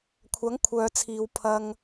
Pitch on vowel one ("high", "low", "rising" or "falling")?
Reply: rising